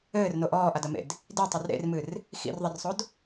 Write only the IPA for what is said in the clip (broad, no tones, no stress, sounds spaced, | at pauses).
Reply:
ɘː r n o ʔ ɔː ʔ a d ɐ m ḛ d | d i tˤ ɛ r ɾ ḛ r m ɨ r | x ḭ r ðˤ ɛ r sˤ o d